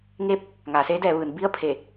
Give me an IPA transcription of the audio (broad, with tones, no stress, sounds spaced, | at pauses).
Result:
ŋ eː˧˥ p̚ | ŋ aː˩˧ s eː˧˥ d ɛː˩˧ ʋ ɯː˩˧ n b i˥˨ ə̯ pʰ e˧˩